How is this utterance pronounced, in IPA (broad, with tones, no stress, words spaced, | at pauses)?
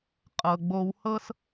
qʼɤ˩ɡ͡bo˨whɤ˦s